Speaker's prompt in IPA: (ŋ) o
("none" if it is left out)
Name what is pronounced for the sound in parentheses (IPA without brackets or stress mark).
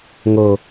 ŋ